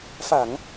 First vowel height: low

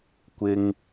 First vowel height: high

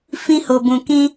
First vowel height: high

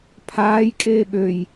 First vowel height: low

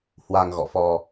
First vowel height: low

